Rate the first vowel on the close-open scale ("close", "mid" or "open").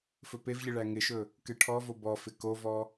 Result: mid